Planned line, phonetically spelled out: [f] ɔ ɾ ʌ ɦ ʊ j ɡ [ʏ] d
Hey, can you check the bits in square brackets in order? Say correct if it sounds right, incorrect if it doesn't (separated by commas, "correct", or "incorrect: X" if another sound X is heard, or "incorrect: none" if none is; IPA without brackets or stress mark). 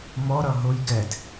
incorrect: m, incorrect: ɛ